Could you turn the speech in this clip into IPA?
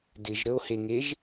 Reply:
d ɪ ʒ ɾ ə o̯ h e ŋ e ʒ

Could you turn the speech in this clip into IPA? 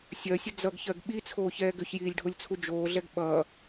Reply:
sʲ ɜ sʲ ə d͡z ʌ ɡ ç ɜ ɡ ɓ i t͡sʰ oː ç ɛː ɡ ʏ ç j iː lʲ ɖʱ o lʲ t͡sʰ u d͡ʒ oː ɮ ɛ ɡ ɓ ʌ

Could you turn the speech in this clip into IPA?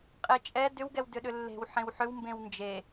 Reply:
qʼ e t͡ʃʼ ɛ d ʏ w ɡ ɛ w d ʏ ɗ ʏ lː e̤ w ħ ẽ w ħ ʏ w m b ẽ w n d͡ʒ e

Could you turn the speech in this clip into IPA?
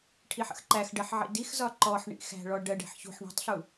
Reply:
ʈʰ i ħ ə̰ x ǃ æ x ɖ ɜ ħ ʕ ḭ d i x z ɒ ǃ ɔ ħ ɳ ḭ x æ̤ ɭ ɔ ɖ ɜ ɖ ɛ̤ ħ ç ṳ ħ ɳ ɔ̤ tˤ ɬ u

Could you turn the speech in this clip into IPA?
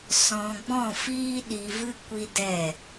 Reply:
s ɔ̃˧ ɡ͡b ɔ̃˦˨ f iː˦ ɗ i˧ v ɨ˦ kʷ i˦ d ɛ˦˨

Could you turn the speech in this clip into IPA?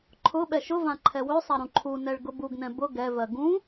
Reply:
ǃʰ ʊ ɓ ɛ ʃ ʊ v ã ǃʰ ɛ w ø sˤ a ɾ ũ ǃʰ u n ɛ ɭ ɡ ʊ b u ɡ n ɛ̃ b ʊ ɡ ɛ v ɜ ɡ ũ

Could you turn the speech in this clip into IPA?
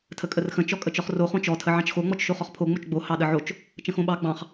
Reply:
tʰ ə kʼ ə r x ə̃ t͡ʃ ɔ kʼ ə t͡ʃ ɔ χ r o χ õ t͡ʃ ɔ tʰ ə ʕ ɑ̃ t͡ʃ x o ŋ͡m ɔ t͡ʃ ʃ o χ ɔ χ pʰ o ŋ͡m o t͡ʃ ɡ͡b o h ɑ ɗ ə ʕ o t͡ʃ | t͡ʃ ə̃ x õ ɓ ɑ ɡ͡b ɑ̃ χ

